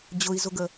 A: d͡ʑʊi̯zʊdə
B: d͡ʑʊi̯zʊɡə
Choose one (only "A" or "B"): B